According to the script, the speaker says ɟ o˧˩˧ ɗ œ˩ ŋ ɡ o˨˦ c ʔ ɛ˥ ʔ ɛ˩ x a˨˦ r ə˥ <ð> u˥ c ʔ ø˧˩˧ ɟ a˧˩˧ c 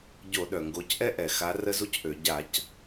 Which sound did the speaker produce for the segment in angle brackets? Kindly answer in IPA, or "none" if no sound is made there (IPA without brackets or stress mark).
z